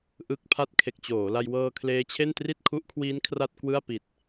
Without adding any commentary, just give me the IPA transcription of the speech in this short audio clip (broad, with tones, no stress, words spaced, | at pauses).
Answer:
ʔɯ˨˩k̚ pʰa˦˥t̚kʰe˨˩k̚t͡ɕoː˩˦la˧j wɤː˧kʰleː˦˥t͡ɕʰe˥˩n tri˥˩t̚kʰu˦˥ʔkʰwiː˦˥n kʰra˥˩t̚kwɯ˥˩a̯ pi˨˩t̚